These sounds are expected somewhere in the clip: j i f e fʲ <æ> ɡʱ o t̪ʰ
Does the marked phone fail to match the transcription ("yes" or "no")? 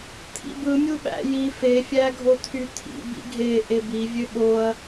no